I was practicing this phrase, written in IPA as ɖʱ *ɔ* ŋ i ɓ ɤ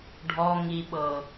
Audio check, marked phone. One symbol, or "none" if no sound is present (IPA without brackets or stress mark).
ɔ